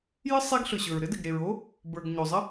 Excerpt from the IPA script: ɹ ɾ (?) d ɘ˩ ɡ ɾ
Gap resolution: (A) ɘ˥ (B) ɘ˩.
A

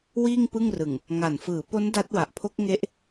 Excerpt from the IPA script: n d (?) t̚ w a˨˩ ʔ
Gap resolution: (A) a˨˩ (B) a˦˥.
B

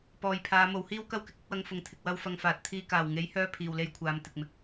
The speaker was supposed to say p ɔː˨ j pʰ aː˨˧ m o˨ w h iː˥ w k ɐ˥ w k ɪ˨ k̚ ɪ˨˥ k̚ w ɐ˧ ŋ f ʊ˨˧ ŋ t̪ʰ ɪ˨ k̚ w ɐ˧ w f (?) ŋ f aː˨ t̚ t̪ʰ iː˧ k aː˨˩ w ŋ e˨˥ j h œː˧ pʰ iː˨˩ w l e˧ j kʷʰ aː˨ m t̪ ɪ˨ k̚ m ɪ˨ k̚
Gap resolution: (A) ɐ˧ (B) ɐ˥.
A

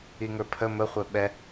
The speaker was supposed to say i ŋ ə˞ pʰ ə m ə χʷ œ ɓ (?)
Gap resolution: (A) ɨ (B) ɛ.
B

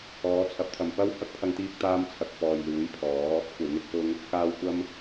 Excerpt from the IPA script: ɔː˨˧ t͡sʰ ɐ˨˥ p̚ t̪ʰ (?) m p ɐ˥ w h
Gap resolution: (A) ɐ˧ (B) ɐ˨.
B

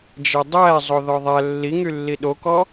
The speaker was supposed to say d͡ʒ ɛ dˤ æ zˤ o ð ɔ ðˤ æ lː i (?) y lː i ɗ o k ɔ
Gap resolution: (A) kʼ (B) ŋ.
B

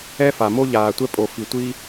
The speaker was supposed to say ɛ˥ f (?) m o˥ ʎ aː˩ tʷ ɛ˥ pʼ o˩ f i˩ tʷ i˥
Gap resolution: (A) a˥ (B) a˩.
B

